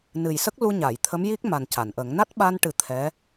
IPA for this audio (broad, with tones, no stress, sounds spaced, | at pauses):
n ɨ˨˩ j s ə˦˥ k̚ l u˧ ɲ a˨˩˨ j t̪ʰ ə˧˥ m j i˦˥ k̚ m a˨˩ n c a˨˩˨ n ʔ ə˨˩˦ ŋ n a˦˥ t̚ ɓ a˧ n ʈ ɨ˨˩˦ t̪ʰ ɛ˧˥